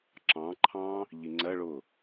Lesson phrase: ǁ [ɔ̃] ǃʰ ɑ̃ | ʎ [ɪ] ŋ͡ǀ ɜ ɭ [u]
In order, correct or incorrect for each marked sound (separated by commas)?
incorrect, incorrect, incorrect